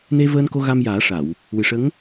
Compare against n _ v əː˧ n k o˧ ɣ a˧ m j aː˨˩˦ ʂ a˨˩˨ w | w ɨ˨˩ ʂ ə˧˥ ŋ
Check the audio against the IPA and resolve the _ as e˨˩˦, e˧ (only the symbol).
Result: e˧